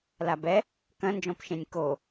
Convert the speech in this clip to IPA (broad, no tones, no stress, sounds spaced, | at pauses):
l a b ɛ | k ɐ̃ n d͡ʒ ɔ̃ p ʃ ẽ nʲ k o